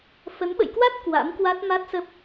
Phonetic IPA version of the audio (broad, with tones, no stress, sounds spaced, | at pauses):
f ə˨˦ n ɓ ə̰˧˨ j k w a˦˥ t̚ k w a̰˧˥ m k w a˦˥ t̚ m a˦˥ t̚ s ə˦˥ p̚